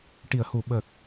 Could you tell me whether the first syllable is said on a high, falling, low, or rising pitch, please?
low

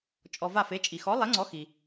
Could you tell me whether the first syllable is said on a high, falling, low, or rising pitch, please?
low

